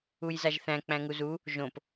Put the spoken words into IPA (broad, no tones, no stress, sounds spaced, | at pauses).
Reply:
u j z a ʒ θ æ̃ k͡p æ̃ ŋ u z u | ʒ õ p